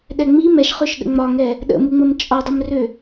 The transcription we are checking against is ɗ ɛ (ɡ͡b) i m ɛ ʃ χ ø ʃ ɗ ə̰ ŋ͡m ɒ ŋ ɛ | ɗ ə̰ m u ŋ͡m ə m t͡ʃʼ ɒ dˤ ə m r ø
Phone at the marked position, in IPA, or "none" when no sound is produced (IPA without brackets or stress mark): ŋ͡m